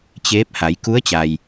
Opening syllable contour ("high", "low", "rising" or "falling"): rising